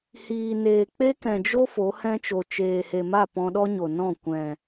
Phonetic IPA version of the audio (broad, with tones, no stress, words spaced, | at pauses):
hiː˨neː˨ k͡pe˦kɛ̃˨d͡ʒo˦ fo˨˦hɛ̃˦t͡ʃo˨ t͡ʃeː˨he˨ma˦˨ pɔ̃˧ɗɔ˦ɲo˨nɔ̃˦˨ kʷɛ̃˨